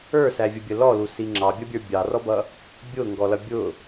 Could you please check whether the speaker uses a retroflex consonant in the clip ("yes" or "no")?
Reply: no